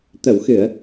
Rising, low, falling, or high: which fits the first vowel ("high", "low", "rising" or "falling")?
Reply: low